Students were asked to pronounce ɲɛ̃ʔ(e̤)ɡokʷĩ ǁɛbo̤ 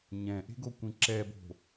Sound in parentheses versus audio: correct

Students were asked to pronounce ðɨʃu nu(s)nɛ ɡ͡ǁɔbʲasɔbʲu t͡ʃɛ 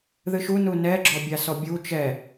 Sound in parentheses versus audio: incorrect: none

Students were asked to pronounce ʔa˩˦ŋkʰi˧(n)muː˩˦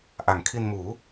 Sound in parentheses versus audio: correct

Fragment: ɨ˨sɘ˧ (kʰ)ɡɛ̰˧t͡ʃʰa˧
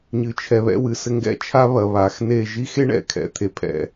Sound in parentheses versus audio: incorrect: ŋ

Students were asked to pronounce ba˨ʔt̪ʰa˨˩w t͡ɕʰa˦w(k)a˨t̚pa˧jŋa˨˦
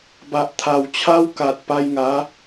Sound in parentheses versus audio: correct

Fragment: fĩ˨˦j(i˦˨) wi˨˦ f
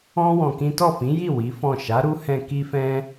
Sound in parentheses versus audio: correct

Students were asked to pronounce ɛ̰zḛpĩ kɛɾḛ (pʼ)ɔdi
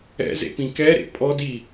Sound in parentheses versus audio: correct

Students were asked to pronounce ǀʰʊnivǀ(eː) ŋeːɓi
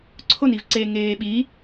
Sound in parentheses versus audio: correct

